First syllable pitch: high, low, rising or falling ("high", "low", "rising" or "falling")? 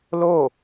falling